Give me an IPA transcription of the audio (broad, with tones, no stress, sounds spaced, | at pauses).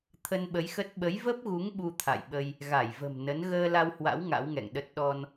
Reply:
t̪ʰ ə˧ n ɓ ə˨˦ j x ə˦˥ t̚ ɓ ə˨˦ j v ə˦˥ p̚ ɣ u˨˦ ŋ ɓ u˧ t̪ʰ a̰˧˨ j ɓ ə˧ j | ɣ a˧˩ j v ə̤˨˩ m n ə˨˦ n ɣ əː˧ l a˧ w h w a̰˧˥ w ŋ a̰˧˥ w ŋ ɛ̰˧˨ ŋ ɗ ə˦˥ t̚ ɗ ɔ˧ n